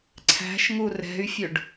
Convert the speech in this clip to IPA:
ǀʰ æ̤ ʃ ŋ u r ɛ̤ y̯ fʲ ɵ ɖ

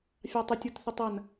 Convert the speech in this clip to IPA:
fʲ ɑ tˤ ə tʲ o t θ ə tˤ ɐ n

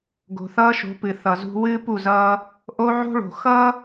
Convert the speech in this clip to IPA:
ɡ o̤˨ θ ʌː˦ ʃ o̤˨˦ p ɨ˨ θ ʌ˨ z ṳ˦ w ɨː˦ p u˦˨ z ʌː˦ | ʔ o˦ ʕ o̤˦ ɭ o̤˨ x ʌ˦

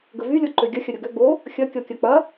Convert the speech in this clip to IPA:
ɡ ə v y lʲ ɔ ǃ ø ɡʲ ɐ xʲ ɐ ɾʲ o ɡ ø ɡ͡b o | xʲ ɐ kʲ ɔ kʲ ɐ k͡p ɐ

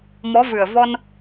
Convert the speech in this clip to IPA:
m ɔ˧˥ v ɨ˨˩ ə̯ v ɔ˧ n

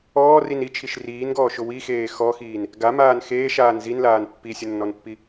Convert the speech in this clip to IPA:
ɔː r i n i t͡ʃʰ i ʃ r iː n ɡ ɔː ʃ ʊ w i x eː x ɔ x iː n | ɡ a m aː n x eː ʃ aː n z i n l aː n pː i sʲ ʊ nː ɔ n pː i

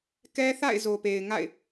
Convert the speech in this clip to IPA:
k ɛ˦ θ a̰˦˨ ɪ̯ z o˨ p e˨ ɪ̯ ŋ a̰˦˨ ɪ̯

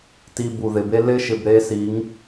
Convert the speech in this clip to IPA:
t i˨ b u˨ ð ɪ˨ b e˦ l ɪ˦ ʃ ɪ˨ b ɾ e˦ s i˨˦ ŋ

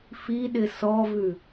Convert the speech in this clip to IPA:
f i ɗ ɪ s ɔ v ʉ

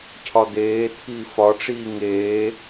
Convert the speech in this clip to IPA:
cʰ ɒ d̪ eː t̪ʰ iː f ɒ ʈ͡ʂ iː ŋ eː

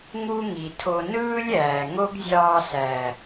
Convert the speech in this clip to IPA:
ŋ u˦ ŋ i˨ tʰ o˧ n ɯː˦ lʲ æː˨ ŋ o˦ ɡ zʲ ɑː˧ s æ˨

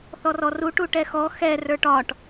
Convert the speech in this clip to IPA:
θ ɔ r ɔ r u ʈ u ʈ ɛ x ɔ x ɛ r ə˞ ʈ ɒ ʈ

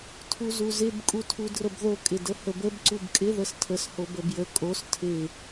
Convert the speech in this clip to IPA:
tʰ u z u z ɪ b kʼ u tʰ u d r ə b ð o kʼ ɪ d ə h ə b ə b ǀ u b kʼ ɪ ð ə s tʰ ə s h o b ə b j ə kʼ o s tʰ ɪ

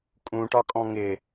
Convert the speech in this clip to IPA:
kʼ ũ ʈ ɒ kʼ ɔ̃ ŋ ɪ

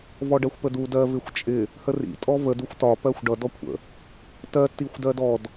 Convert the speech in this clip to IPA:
v ɔ ɖ ɜ xʷ p ə d u d ɜ v ɪ xʷ t͡ʃʼ ɪ | h ə r ḭ tʼ ɔ v ə d u xʷ t ɒ p ɜ xʷ ɖ ʌ d ɔ kʷʰ ə̰ | t ɜ t i xʷ d ɜ d ɔ d

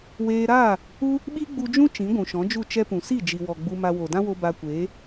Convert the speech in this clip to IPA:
w eː˧ ɾ aː˦˨ | u˦ | ɓ i˦ ɡ͡b u˧ d͡ʒ ũ˦ t͡ʃ ĩ˨˦ ɡʷ ũ˨ ʃ ɔ̃˨˦ d͡ʒ u˦˨ t͡ʃ ɛ˦ p ũ˨ s i˦˨ d͡ʒ i˨ w ɔ˨ ɡ͡b u˧ m a˧ w o˨ d ã˦ w o˧ b a˧ kʷ eː˨˦

